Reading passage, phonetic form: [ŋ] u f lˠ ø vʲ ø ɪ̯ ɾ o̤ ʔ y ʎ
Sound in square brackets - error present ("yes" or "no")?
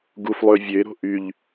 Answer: yes